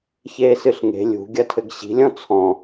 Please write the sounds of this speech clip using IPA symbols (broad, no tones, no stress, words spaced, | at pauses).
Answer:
çeːsɨɬŋe̤ lʲṳ ɡʲɐtʰɘɡɕi̤ lʲɔ̃t͡sʰɔ̃